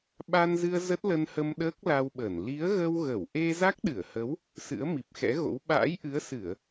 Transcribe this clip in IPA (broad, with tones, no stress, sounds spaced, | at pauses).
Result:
ɓ a˧ n z ɨ˧ ə̯ z ə˦˥ t̚ l ə˧ n h ə˧ m ɗ əː˦˥ k̚ l a˧ w ɓ əː˧˩ n l i˨˦ ə̯ ɣ ə˧ w ɣ ə˧˩ w ʔ e˧ z a˦˥ k̚ ɗ ɨ˧˩ ə̯ h ə˨˦ w | s ɨ̰˧˥ ə̯ m i˨˩ p̚ x ɛ̰˧˥ ɣ o̰˧˥ w ɓ a̰ː˧˥ j ʔ ɨ˨˦ ə̯ s ɨ˧˩˨ ə̯